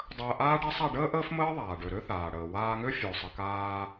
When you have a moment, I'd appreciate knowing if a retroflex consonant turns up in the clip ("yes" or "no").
yes